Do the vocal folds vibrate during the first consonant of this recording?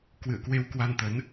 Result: no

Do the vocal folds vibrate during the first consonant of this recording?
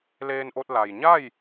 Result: yes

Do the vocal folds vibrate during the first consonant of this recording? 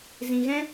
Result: yes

